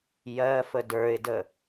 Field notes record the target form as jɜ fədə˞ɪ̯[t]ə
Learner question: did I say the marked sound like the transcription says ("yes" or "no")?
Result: no